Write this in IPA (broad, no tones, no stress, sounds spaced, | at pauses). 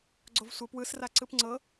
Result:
ɡ͡ǀ o v sʷ ə p w ɯ s r a ǀ ɯ p ŋ͡ǀ ɤ